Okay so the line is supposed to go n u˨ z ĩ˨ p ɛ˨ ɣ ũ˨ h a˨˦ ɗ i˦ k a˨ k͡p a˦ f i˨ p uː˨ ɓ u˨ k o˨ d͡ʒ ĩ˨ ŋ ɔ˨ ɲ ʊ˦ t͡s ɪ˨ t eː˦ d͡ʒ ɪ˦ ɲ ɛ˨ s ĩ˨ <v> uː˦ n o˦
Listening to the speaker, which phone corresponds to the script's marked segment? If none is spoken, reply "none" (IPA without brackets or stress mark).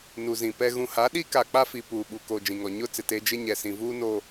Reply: v